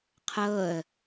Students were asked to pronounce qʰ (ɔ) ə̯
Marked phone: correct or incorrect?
incorrect